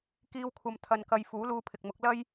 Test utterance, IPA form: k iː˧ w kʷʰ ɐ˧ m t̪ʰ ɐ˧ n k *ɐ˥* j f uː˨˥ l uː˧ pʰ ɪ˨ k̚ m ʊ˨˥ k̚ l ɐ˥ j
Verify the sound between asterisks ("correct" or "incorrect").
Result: incorrect